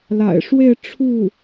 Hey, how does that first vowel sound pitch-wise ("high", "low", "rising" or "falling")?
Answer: low